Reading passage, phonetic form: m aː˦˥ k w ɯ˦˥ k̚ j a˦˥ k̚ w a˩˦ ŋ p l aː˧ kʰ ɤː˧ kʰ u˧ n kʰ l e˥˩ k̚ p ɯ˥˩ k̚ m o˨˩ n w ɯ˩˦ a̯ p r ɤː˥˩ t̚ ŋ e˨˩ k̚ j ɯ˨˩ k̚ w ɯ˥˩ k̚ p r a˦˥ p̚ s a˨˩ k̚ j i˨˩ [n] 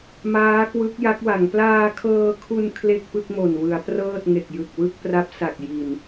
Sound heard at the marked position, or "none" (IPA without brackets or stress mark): n